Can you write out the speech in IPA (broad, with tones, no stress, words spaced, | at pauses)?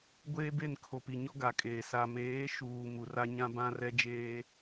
ɡʷeː˦be˦˨nkʰo˨pi˨ ɲɔ˦ɡa˨kʼeː˨ sa˨meː˨˦ʃuː˨ mu˨ra˦ɲã˦ bã˦rɛ˦d͡ʒeː˦